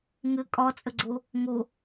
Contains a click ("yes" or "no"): yes